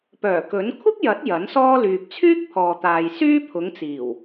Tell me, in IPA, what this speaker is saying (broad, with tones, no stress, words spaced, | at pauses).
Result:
pœː˨˩kɵ˨˥n kʷʰɪ˥k̚jɐ˨˥t̚ jɐ˨˥nsɔː˥ lyː˨p̚t͡sʰyː˥k̚pʰɔː˨t̪aː˨j syː˥pʰʊ˨˧ŋt͡siː˨˩w